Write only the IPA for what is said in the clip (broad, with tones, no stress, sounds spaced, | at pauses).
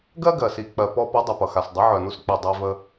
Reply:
ɡ ɜ˥ ɡ ɜ˨˩ s i˨˩ k͡p ɜ˨˩ p ɔ˧ p ə˨˥ dˤ ɪ˨˩ p ʌ˨˩ x a˨˩ s dˤ ɪ˨˥ ʕ œ˨˩ n u˧ s k͡p i˨˩ dˤ œ˧ v ə˧